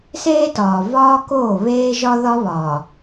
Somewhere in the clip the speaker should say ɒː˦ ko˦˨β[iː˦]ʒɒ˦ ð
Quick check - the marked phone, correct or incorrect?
incorrect